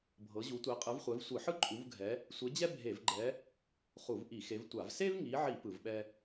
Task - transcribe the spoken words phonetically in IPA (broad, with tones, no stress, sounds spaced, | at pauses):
bʱ ɤ˨˦ ʑ u˨˦ tʷ e˨˦ qʼ ɯ˨˦ v χʷ ɛ˨˦ v sʷ ɯ˧˩˧ ħ ɯ˥ ǃʼ u˨˦ v ɡʱ ɛ˨˦ | sʷ e˨˦ d͡ʑ ɛ˥ bʱ e˧˩˧ v ɡ͡ǃ ɛ˨˦ | χ u˧˩˧ v ʔ i˧˩˧ x e˨˦ v tʷ a˧˩˧ v s e˥ v ŋ i˨˦ ʕ i˧˩˧ p ɯ˧˩˧ v ɓ ɛ˥